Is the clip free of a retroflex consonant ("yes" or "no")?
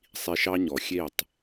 yes